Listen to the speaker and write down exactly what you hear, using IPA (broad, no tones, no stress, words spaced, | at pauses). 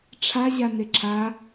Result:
ʈ͡ʂʰa ʑaneǁʰa